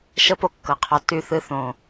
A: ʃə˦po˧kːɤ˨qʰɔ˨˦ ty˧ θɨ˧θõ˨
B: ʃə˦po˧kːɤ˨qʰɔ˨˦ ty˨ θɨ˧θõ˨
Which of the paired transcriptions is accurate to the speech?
A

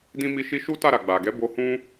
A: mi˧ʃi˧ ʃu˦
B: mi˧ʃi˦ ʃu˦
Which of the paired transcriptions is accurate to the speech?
A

